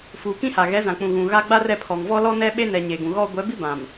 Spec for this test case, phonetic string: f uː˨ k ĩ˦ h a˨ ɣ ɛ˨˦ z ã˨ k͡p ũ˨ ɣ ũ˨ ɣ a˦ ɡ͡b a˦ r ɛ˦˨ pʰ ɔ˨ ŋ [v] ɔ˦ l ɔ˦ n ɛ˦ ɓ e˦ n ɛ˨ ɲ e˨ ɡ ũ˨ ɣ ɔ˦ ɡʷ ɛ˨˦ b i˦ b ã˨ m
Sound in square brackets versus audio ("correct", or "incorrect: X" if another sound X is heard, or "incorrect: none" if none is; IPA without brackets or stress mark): correct